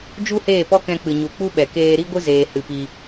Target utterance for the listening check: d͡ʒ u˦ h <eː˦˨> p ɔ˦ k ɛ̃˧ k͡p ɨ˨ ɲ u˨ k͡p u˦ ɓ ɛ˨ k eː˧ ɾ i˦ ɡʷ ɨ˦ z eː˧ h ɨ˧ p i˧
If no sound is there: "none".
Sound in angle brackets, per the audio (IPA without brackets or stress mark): eː˦˨